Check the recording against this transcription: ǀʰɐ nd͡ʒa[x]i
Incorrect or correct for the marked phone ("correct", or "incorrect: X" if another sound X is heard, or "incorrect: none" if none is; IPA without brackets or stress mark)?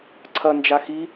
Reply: correct